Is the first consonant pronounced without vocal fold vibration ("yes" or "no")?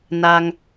no